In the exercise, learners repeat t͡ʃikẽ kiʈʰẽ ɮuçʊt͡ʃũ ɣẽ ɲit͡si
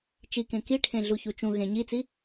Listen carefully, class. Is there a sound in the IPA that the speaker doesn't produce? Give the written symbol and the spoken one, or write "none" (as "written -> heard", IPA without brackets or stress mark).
ʊ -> u